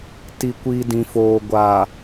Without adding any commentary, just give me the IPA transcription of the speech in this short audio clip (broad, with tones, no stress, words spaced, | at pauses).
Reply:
ti˨kʷi˨ dĩ˨foː˨ ɡʷaː˨